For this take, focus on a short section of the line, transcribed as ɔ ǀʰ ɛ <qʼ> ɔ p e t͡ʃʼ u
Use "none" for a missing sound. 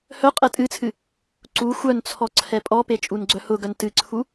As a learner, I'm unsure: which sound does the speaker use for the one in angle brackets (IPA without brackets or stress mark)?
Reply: pʼ